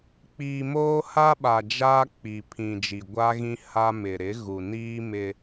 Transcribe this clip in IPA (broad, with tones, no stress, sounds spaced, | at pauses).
k͡p iː˨ m oː˦ h a˦ ɓ a˨ d͡ʒ aː˦ k͡p i˨ pʰ ĩ˨ d͡ʒ i˨ ɡʷ a˦ ɣ ĩ˦ h a˦ m ɪ˨ ɾ ɪ˨˦ ɣ u˨ n iː˦ m ɪ˦